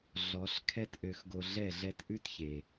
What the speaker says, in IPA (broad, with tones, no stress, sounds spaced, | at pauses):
ɮ ɔ˨˦ ɬ kʰ ɛ˦ t ʔ ø˧ x ɡ o˧ ɮ ɛ˦˨ ɮ ɛ˧ t ʔ ʉ˦ t ç e˨